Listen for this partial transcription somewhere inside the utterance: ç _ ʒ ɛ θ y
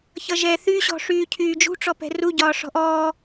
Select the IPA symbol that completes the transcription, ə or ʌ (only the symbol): ʌ